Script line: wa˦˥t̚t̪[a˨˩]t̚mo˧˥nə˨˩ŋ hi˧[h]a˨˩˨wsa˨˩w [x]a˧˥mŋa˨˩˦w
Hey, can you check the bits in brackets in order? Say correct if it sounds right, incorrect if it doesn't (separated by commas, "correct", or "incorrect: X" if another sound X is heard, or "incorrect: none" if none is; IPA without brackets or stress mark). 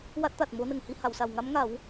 correct, correct, incorrect: ŋ